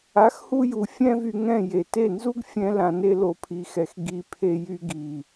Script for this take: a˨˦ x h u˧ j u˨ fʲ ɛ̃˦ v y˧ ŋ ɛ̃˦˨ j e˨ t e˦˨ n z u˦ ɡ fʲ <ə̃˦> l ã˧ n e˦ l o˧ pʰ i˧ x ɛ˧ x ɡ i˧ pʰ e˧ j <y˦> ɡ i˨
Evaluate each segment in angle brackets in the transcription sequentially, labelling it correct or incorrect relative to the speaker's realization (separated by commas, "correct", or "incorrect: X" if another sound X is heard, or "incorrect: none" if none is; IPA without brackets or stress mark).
incorrect: ɛ̃˦, incorrect: y˧